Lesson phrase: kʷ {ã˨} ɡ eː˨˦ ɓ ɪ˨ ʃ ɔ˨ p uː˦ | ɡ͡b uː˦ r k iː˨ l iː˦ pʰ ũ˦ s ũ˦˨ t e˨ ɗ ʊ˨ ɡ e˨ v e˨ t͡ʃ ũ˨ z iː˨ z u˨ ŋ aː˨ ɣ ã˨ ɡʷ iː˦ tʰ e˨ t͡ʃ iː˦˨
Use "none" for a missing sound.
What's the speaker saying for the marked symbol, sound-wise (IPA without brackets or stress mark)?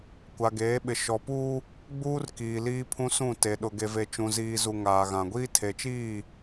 a˨